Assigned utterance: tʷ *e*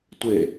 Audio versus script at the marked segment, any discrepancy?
no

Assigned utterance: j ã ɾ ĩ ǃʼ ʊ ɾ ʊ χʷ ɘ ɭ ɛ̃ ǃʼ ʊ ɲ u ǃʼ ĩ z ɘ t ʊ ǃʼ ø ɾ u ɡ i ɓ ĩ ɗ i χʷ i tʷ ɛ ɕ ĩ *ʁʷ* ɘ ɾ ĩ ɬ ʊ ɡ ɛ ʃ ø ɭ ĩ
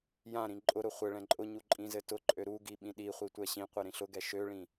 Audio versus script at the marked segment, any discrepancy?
yes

